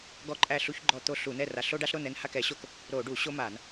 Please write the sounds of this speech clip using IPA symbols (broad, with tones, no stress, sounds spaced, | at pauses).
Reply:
ɡ ɔ˥˨ ǃʼ æ˥˨ ɬ u˦ ç ɡ͡ǃ ɔ˥˨ t̪ o˦ ɬ u˧˩˧ n ɛ˥˨ r a˧˩˧ ɬ o˦ ɖ a˦ ɬ ɾ o˥˨ n ɛ˥˨ n h a˥˨ k ɛ˧˩˧ ɕ o˥˨ k | ɾ o˧˩˧ ɖ u˧˩˧ ɕ o˦ m a˧˩˧ n